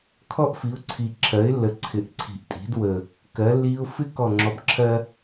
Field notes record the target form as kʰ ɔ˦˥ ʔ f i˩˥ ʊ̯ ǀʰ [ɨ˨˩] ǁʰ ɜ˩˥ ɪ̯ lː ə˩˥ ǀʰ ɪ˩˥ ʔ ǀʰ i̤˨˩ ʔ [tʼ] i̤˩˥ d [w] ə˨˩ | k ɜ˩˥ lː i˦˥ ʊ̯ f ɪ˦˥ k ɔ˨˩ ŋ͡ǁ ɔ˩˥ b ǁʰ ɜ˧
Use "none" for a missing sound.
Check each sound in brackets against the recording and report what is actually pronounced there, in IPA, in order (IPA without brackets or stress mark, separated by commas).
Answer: i˨˩, tʼ, w